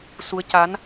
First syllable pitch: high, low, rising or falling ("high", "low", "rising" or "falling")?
rising